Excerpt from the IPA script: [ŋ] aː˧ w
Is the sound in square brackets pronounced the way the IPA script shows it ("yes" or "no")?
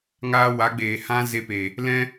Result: yes